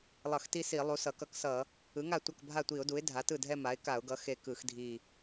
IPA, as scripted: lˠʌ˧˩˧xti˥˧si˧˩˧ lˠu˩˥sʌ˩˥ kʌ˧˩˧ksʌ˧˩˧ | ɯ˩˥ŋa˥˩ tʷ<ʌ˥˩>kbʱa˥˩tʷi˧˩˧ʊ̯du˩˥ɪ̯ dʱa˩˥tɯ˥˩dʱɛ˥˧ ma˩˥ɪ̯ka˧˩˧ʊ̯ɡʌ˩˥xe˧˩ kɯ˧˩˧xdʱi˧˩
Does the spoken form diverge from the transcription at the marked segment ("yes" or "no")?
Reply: no